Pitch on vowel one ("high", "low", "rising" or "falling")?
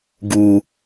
low